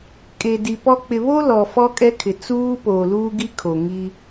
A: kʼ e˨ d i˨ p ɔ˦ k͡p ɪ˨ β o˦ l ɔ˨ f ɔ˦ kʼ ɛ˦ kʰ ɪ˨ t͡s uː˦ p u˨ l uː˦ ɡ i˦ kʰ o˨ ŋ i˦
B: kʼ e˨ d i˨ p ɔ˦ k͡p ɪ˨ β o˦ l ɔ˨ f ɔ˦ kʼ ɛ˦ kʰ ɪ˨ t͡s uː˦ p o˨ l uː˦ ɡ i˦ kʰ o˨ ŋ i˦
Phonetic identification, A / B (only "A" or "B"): B